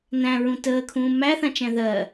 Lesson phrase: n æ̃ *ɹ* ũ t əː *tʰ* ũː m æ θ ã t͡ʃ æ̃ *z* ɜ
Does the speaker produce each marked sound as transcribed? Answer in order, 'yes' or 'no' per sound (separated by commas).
yes, no, no